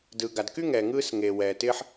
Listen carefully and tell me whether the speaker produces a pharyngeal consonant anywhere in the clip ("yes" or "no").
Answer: yes